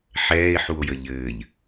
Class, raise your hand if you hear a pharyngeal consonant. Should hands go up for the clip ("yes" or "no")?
yes